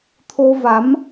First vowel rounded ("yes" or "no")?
yes